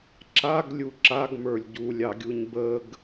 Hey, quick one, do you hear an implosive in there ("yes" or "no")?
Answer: no